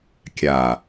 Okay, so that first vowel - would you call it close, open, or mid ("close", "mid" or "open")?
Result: open